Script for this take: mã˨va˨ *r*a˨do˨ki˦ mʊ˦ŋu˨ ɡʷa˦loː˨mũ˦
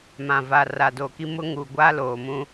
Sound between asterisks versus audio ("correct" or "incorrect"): correct